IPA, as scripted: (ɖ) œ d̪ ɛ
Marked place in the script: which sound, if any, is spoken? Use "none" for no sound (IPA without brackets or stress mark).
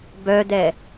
b